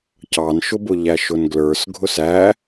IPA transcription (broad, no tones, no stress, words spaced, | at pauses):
cɑnʃʊbʊ ʎæʃʊnɡlə˞s ɡʱʊsæ